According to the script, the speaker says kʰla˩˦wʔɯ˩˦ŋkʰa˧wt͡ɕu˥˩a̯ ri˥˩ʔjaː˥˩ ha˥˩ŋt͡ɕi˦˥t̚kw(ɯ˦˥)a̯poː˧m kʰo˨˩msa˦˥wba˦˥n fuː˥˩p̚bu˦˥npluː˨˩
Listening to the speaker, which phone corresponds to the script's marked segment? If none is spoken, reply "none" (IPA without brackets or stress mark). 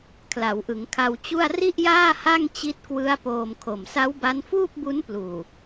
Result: ɯ˦˥